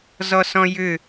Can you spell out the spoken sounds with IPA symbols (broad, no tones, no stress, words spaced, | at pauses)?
zɔsɔ̃jʏ